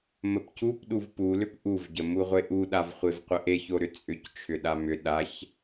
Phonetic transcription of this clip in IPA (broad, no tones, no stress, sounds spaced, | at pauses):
m ə p c u p ɗ u v p u l ʏ p ʔ u v ɟ ə m u ʁʷ e ʔ u ɗ a v χʷ e v qʷ ə ʔ e ç o ɾ ʏ t͡sʼ ʏ c t͡ʃʰ ʏ ɗ a m ʏ ɗ a ç